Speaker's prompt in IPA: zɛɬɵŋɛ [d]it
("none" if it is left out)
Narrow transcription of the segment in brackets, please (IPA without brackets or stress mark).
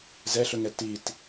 t